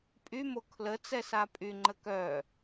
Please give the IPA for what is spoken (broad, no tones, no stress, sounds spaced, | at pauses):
pʼ y m o kʰ l ə t͡s ɛ s a pʼ y ŋ͡ǃ ə k œ